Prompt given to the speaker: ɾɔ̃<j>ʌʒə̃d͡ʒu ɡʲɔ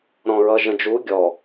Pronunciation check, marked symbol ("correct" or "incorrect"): incorrect